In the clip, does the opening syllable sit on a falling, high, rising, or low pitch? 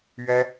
high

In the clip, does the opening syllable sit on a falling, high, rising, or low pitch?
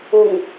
low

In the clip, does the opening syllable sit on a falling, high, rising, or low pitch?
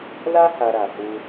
high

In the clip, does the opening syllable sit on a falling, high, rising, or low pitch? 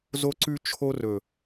high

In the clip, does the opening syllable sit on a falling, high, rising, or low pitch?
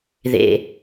low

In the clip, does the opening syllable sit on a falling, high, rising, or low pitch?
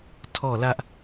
falling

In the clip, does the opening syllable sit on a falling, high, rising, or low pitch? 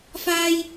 high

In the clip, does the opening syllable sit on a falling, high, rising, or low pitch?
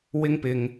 high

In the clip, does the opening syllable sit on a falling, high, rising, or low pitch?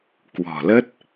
low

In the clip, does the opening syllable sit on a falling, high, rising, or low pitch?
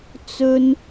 high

